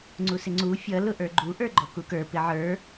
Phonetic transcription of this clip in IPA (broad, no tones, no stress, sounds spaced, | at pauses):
ŋ͡ǀ u s ɪ ŋ͡ǀ u fʲ ʌ l ʊ ʔ ə˞ ɡ͡ǃ u ʔ ə˞ ɡ͡ǃ ɔ k u k ə˞ p ɪ ʕ ə˞